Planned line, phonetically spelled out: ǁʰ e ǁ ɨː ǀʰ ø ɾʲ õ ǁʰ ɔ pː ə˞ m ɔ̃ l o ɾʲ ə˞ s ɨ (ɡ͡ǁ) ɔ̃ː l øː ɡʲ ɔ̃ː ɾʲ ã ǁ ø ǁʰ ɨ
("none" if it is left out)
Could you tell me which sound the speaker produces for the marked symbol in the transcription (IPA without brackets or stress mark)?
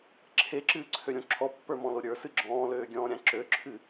ɡ͡ǁ